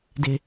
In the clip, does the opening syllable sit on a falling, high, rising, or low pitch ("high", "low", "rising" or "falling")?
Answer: low